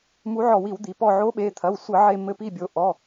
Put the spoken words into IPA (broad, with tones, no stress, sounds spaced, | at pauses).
m u˨˥ ʕ ɔ˧˩˧ w i˧˩˧ w d̪ i˩˧ p ɔ˧˩ ʕ o˨˥ ɓ e˩˧˩ t̪ʰ ɐ˩˧˩ w sʷ ɘ˧˩˧ ʕ e˧˩ m ɘ˧˩ p i˧˩ bʲ o˩˧ ʔ ɔ˩˧˩